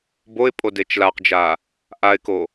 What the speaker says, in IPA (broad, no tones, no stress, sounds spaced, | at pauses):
b o ɪ̯ pʼ o d e t͡ʃ l a q d͡ʒ a | ʔ a ɪ̯ k o